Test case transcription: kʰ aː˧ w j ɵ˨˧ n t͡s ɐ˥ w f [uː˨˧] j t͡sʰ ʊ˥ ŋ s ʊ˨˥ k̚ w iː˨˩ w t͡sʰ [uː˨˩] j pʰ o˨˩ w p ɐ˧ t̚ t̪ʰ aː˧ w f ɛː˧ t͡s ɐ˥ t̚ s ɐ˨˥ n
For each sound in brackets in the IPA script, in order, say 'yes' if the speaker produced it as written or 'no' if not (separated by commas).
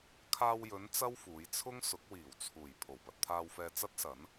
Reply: yes, yes